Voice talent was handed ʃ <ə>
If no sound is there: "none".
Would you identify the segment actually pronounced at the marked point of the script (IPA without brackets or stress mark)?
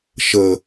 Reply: ə